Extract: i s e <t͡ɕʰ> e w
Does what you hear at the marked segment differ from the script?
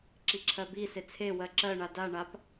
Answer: yes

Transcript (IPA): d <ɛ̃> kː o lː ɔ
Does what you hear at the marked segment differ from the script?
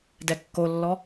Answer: yes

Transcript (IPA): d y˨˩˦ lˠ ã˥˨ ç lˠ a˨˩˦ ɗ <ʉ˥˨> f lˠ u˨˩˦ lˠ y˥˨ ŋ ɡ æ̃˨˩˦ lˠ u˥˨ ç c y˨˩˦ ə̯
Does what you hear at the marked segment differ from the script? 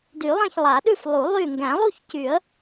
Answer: no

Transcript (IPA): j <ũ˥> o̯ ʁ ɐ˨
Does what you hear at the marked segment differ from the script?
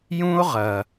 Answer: no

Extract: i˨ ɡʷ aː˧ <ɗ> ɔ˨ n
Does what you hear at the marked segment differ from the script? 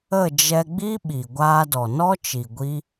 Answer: yes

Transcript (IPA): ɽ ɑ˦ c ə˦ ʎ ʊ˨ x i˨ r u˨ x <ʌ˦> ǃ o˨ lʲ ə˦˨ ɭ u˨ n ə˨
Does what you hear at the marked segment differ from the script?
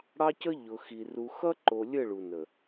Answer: no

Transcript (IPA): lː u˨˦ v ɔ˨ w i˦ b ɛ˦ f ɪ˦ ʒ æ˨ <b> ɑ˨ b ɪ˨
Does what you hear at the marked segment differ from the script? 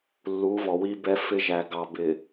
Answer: yes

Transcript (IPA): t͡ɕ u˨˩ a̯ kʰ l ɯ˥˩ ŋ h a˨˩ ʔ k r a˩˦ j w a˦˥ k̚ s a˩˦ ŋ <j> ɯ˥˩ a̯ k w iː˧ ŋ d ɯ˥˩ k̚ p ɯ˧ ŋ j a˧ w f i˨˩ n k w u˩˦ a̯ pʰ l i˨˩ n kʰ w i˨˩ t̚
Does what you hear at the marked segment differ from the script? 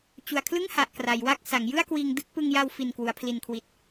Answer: no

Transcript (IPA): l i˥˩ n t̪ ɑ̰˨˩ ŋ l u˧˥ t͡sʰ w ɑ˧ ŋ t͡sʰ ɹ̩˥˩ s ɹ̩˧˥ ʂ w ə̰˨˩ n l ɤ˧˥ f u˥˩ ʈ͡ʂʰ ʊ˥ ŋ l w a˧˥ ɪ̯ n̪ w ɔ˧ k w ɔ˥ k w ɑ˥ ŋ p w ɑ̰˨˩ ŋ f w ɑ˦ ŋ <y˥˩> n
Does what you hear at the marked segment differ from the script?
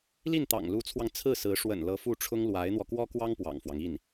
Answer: yes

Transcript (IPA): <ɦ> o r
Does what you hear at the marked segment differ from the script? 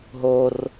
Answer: no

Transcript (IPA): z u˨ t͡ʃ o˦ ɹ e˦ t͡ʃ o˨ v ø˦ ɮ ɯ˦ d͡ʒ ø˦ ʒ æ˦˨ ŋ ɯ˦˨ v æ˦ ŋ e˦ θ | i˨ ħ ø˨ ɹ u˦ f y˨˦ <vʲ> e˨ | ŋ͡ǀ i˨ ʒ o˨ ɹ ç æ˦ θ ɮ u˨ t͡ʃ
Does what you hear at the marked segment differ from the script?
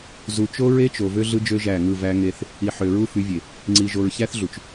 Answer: no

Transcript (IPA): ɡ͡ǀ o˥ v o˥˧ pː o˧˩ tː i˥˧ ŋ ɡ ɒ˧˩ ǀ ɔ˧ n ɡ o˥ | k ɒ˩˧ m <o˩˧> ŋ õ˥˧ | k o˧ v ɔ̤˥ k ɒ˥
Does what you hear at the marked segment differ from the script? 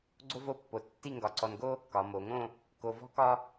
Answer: no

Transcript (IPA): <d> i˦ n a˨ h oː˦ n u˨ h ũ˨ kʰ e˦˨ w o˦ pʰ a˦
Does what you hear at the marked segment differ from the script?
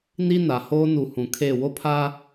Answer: yes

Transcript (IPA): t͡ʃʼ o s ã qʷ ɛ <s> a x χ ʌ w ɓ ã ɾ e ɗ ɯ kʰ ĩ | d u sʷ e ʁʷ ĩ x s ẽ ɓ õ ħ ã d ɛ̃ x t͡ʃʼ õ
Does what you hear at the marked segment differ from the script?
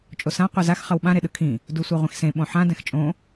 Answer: yes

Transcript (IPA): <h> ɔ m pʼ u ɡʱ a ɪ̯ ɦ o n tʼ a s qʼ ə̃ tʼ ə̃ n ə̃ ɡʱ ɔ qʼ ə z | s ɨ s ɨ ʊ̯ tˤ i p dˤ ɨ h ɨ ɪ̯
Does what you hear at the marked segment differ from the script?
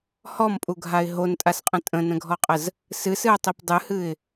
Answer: no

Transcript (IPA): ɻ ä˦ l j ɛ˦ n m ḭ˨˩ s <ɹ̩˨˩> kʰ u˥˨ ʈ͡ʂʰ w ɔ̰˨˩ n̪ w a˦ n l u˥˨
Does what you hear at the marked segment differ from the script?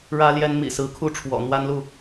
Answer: yes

